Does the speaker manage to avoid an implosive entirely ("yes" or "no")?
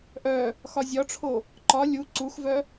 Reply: yes